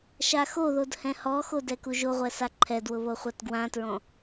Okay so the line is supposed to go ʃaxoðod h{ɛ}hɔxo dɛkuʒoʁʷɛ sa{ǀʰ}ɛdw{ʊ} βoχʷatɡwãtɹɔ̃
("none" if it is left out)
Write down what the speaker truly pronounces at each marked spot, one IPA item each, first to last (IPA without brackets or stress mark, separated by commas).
ɛ̃, ǃʰ, ʊ